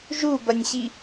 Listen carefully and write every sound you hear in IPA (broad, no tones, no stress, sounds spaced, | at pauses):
ʒ u b ɐ nʲ ɕ i